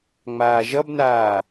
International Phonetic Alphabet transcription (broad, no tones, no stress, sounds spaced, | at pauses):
ŋ͡m aː ʒ ʌ b n aː